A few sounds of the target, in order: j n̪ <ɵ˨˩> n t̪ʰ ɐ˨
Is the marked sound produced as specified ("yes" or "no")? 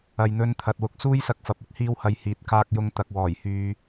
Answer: no